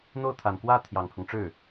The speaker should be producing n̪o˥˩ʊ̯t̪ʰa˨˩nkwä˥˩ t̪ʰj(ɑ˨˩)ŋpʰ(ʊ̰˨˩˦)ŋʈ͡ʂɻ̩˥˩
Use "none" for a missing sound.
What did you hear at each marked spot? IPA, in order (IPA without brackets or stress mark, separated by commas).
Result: ɑ˨˩, ʊ˦